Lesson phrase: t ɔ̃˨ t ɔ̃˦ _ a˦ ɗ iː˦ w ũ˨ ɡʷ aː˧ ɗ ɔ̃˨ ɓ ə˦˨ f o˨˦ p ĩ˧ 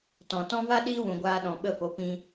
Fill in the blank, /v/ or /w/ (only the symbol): v